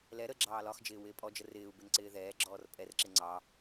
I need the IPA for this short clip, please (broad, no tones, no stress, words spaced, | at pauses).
lɛ ɾə ɡ͡ǁɑːlɒxd͡ʒɪː wɪːpʼɔd͡ʒə rɪːu̯ bɪnǀɪːðɛːɡ͡ǁɔːr pʼɛrǁɪ ŋ͡ǀɑ